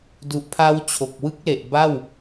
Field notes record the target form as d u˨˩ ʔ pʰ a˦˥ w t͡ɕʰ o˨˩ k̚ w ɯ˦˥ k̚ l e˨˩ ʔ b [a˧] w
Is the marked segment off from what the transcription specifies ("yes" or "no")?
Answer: yes